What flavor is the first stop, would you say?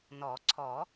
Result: click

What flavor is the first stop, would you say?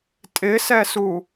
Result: ejective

